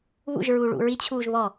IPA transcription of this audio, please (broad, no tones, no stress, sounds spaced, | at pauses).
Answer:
β ṵ ʒ ɹ uː ɭ ṵ ɹ i t͡ɕʰ uː ʒ β ɔ